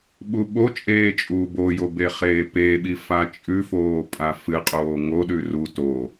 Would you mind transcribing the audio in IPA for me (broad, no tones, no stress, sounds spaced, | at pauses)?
ɓ u ɓ o t͡ʃʼ eː t͡ʃʼ uː b o j o b e χ eː p e ɓ i f a t͡ʃʼ ʉ f oː pʼ a f ɨ qʼ oː ŋ o ɗ ʉ r u t o